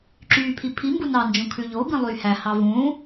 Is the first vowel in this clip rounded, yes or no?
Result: yes